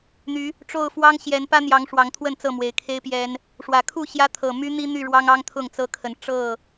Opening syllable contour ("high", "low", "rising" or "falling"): rising